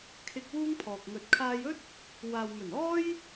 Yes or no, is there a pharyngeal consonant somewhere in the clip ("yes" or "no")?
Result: no